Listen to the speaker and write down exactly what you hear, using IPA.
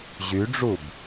ʑ y ɖ͡ʐ u b

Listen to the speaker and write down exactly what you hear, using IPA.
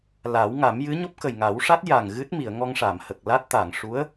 l a˨˩˦ w ŋ a˨˩˦ m j ɨ˧˥ ɲ o˦˥ p̚ k ə˨˩ j ŋ a˨˩˦ w ʂ a˦˥ t̚ j a˨˩ ŋ ɣ ɨ˦˥ t̚ m i˨˩˨ ə̯ ŋ ɔ˧ ŋ ʂ a˨˩˨ m h ə˨˩ k̚ l a˦˥ t̚ t̪ a˨˩˨ ŋ ʂ u˧˥ ə̯

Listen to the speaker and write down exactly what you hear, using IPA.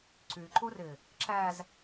ǀ y ǃ u r ɪ | ǁ æ z

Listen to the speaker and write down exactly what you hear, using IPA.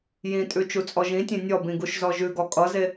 j ĩ tʼ ʉ t͡ʃ u t͡sʼ ɔ ʒ ĩ tʲ ẽ nʲ ɔ b ĩ ɡ u ʃ z ɔ ʒ ʉ ɡ ɔ kʼ ʌ z e

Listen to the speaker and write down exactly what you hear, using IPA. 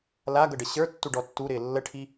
l a ɡ ɤ ɖ ə ɕ ə˞ tː u ɖ ɔ tː u ɾ ɪː lː ə ʈʰ i

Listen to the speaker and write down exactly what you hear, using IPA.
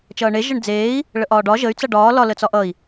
t͡ʃ ʌː ɳ e ʒ ə ɳ d͡z eː i̯ | ɭ ə ʔ ɒː ɖ ɒ ʒ ə y̯ t͡s ʌ ɖ ɒː l ɒ l ə t͡s ɒ ʔ ʌ i̯

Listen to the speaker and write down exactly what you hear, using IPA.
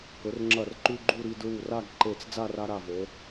k ɵ˩˧ r ŋ͡ǁ ɐ˧˩ r ǃ ʉ˧ ɡ͡ǃ u˥˧ ɾ i˧ d ɹ u˧˩ r a˥˧ ɡ ǃ e˧˩ t͡s d͡z a˥˧ r a˧ ɾ a˧˩ v o˩˧

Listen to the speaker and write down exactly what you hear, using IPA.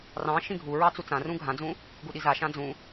r ɑ̃ ʃ ĩ ɡʱ u ɹ ɑ t͡s u t͡s ã r ũ ɡʱ ã d͡z ũ | ɡ u ɗ i z a ʃ ã d͡z ũ

